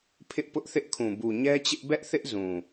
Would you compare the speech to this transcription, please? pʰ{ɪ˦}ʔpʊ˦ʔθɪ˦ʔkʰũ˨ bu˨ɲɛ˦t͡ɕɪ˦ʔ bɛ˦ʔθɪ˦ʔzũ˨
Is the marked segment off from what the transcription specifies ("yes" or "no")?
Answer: no